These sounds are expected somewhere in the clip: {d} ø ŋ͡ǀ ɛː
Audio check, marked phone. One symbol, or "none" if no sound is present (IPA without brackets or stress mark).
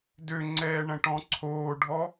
d